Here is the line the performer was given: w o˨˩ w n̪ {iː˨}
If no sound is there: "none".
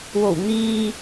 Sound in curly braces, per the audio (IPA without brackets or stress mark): iː˨